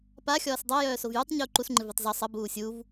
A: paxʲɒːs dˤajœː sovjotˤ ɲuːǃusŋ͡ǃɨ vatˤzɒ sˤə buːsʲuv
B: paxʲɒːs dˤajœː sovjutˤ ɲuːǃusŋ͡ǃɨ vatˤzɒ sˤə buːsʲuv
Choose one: B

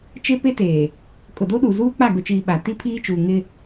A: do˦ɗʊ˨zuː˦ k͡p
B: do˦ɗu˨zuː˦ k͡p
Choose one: B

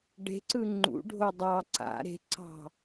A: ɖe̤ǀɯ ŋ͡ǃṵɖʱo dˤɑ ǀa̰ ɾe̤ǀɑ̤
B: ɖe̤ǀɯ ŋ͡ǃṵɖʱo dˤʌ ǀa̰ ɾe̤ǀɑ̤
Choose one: A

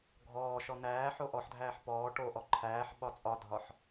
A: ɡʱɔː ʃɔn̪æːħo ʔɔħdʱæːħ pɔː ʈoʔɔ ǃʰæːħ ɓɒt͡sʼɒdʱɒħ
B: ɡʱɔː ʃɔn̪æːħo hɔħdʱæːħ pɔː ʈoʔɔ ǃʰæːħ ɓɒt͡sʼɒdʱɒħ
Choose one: A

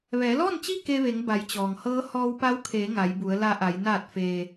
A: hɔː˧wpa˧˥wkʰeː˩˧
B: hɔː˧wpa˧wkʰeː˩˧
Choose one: A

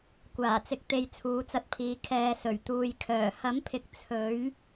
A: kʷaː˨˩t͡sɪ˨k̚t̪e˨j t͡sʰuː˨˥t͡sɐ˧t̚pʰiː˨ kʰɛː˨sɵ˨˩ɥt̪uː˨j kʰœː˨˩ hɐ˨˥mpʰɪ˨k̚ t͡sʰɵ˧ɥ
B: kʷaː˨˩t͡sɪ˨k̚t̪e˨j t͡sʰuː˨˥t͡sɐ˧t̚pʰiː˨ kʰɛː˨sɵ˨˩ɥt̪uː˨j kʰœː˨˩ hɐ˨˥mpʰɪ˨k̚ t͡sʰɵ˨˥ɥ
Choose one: B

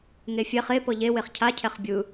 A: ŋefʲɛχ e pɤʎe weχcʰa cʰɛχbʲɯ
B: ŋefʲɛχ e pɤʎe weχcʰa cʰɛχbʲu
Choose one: A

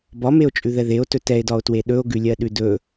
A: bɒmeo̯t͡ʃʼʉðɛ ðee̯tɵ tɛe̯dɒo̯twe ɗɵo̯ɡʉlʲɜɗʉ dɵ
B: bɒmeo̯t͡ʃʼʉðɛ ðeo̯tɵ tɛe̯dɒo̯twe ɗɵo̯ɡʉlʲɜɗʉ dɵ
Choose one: B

